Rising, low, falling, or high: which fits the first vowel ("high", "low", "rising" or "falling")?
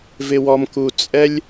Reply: low